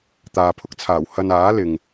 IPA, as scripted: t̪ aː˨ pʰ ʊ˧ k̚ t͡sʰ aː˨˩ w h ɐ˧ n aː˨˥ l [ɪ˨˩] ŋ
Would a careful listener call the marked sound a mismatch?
yes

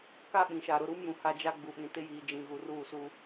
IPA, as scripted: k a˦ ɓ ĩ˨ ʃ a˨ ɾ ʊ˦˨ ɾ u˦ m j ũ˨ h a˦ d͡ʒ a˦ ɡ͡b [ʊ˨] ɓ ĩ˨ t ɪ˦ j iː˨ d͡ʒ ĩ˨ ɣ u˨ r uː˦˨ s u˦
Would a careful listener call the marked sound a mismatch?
yes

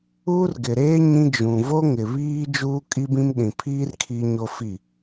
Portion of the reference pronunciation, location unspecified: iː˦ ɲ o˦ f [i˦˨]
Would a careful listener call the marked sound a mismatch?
no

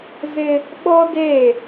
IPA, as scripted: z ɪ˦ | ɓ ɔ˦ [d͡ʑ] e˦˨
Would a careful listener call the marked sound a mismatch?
yes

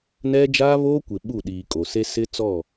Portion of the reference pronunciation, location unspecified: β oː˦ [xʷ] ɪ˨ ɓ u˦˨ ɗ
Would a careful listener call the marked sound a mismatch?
yes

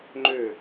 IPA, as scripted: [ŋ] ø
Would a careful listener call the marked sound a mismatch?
yes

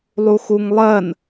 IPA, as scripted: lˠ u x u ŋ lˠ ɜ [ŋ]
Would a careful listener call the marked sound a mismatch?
yes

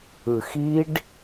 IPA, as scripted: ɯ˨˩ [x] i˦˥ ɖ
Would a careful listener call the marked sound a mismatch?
no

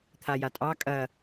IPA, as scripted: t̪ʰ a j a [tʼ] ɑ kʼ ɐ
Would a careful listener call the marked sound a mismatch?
no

